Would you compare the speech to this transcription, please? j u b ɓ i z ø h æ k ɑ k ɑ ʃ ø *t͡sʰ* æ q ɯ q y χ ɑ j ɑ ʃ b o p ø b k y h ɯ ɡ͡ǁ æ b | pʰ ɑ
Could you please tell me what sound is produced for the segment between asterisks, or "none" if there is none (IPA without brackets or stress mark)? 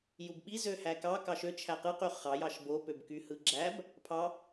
t͡ʃʰ